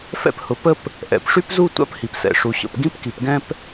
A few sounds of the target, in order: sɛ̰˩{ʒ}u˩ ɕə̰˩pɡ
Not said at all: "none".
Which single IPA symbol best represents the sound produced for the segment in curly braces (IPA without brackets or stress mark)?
ʂ